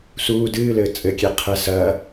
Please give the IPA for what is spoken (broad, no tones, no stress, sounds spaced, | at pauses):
s uː d ɨː l ɘː t͡sʼ ɘ kʲ e qʰ ɛ s ɐː